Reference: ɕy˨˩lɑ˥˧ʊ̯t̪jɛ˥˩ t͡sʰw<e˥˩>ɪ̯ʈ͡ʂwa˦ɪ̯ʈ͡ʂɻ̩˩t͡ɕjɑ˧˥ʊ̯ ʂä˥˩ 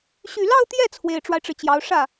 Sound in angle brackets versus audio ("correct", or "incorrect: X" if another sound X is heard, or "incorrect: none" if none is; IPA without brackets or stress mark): incorrect: e˨˩